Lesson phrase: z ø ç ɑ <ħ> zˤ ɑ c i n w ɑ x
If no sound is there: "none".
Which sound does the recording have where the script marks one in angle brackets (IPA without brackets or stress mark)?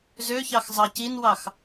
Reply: x